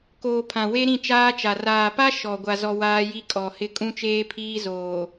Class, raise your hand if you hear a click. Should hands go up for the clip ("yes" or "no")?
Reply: no